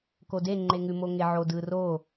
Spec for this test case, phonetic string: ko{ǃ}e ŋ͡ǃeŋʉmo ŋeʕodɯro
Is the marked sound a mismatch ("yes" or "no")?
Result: yes